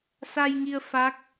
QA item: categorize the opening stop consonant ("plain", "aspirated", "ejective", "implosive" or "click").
plain